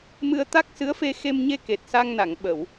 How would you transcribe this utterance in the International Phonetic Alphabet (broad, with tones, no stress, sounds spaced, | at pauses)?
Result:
m ɨ˧ ə̯ t̪ a˦˥ k̚ s ɨ˧˥ ə̯ f e˧ x e˧ m ɲ e˧ k e˨˩ t̚ s a˧ ŋ n a˨˩˨ ŋ ɓ ə˨˩˨ w